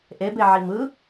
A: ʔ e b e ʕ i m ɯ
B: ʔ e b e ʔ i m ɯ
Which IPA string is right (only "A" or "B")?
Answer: A